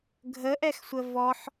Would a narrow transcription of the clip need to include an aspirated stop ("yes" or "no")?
no